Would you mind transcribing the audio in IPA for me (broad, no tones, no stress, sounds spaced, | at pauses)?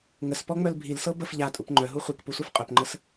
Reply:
ŋ ə s p ɔ ŋ͡m œ l bʱ i l s ɤ b ə f ʎ a tʼ u p ŋ͡ǃ œ ɦ u χʷ i k p u sʷ ɛ f qʼ œ p ŋ͡ǃ ə s